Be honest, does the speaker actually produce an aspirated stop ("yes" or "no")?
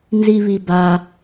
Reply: no